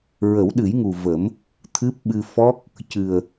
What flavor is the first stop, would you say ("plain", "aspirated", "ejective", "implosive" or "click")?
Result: implosive